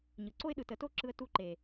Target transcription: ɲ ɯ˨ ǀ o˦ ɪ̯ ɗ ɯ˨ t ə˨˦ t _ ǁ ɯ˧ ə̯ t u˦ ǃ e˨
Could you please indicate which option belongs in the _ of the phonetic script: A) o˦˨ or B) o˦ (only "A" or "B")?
B